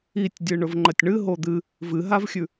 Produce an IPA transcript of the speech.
i tʲ dʲ ɨ ɳ ɵ v ŋ͡ǃ ɐ tʲ ɳ ɨ ɦ o d̪ ɨ | v ɨ ɦ a v xʲ ʉ

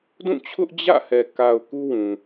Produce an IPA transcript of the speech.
d ũ˦˨ t͡ɕʰ ʊ˦ ʔ d͡ʑ ä̰˦˨ h ɛ˨ k a˨ ʊ̯ k u˦ w ũ˨

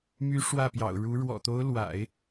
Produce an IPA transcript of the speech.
m y˧˥ ʂ w ä˥˩ p j ɑ̰˨˩ ʊ̯ ɻ u˧˥ ɻ w ɔ̰˨˩ t̪ o˧˥ ʊ̯ l w a̰˨˩˦ ɪ̯

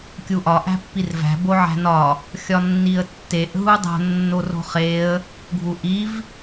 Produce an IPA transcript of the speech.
kʲ u ʔ ɒ ʔ æ̤ pː i r v æ̤ b o ʕ æ̤ n ɒ | xʲ ɒ nː i ə̯ tː e ʔ ɦ u dˤ o̤ nː o r o̤ χ e ə̯ | ɡʱ u ʔ i v

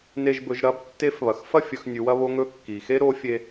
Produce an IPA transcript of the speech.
n e˧ ʒ b ɵ˩˧ ʒ ɾ ɐ˧˥ b tː e˧˥ f β ɐ˩ x f ɐ˥ fʲ ɵ˩˧ x nʲ ʉ˩˧ w ɐ˥ β o˥ ŋ ɵ˥ kː i˩ x e˥ ɾ o˧˥ fʲ e˧

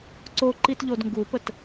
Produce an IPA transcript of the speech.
ǀ o ǃ i t ʎ o d ŋ ɡ u p ə t

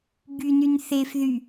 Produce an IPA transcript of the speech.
b y n y n θ e f ð y

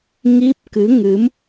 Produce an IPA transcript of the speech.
ŋ i˦˥ p̚ k ɨ˨˦ ŋ ɨ˨˦ m

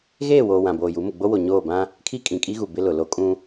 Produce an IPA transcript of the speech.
ɣ eː˦˨ w oː˨ w ã˨ b oː˨ j u˨˦ m ʊ˨ ɡ͡b o˦ w o˨ ɲ oː˦˨ b ã˦ | kʰ i˦ kʼ ĩ˨ kʼ i˦ ɣ u˨ b ɪ˦ l ʊ˨ l o˦ kʼ ũ˦

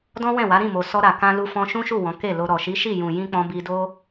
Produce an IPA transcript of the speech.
d ɔ̃˦ w ɛ̃˦˨ w a˨˦ ɾ ĩ˦˨ m o˨ s ɔ˧ ɾ a˨ k ã˧ l u˧ f ɔ̃˧ ʃ ũ˦ ʃ u˦˨ w ɔ̃˨˦ k e˦˨ l o˧ ɾ ɔ˨ ʃ i˨˦ ʃ i˦˨ j ũ˨ j ĩ˧ k͡p ɔ̃˧ b i˧ d o˦

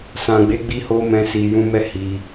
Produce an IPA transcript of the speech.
s ã˨ ɡ͡b e˨˦ ɡ͡b i˧ h o˧ m ɛ̃˧ s i˨ j ũ˧ m ɛ˦ h i˧

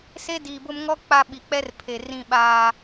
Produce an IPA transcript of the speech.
s e˦ d iː˨ b ʊ˦ m ŋ ɔ˦ k͡p a˦ ɓ i˨ k͡p ɛ˦ r pʰ e˨ r ĩ˦˨ ɓ aː˦

